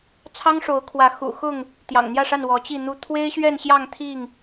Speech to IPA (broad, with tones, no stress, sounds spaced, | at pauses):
t͡sʰ ɑ˦ ŋ ʂ o˨˦ ʊ̯ kʰ w ä˨˦ x ṵ˨˩ x ʊ˥˨ ŋ | t̪ j ɑ̰˨˩ ŋ n̪ j ä˥˨ ʂ a˥˨ n w ɔ˨˦ t͡ɕ i˥˨ n̪ u˦ t̪ʰ w e˦ ɪ̯ ɕ ɥ ɛ˥˨ n ɕ j ɑ˥˨ ŋ t̪ʰ i˥˨ ŋ